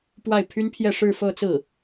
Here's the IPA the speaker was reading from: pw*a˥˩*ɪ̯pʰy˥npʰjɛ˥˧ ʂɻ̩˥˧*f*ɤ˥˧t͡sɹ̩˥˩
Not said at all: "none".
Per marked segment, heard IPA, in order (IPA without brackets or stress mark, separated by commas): a˥˩, f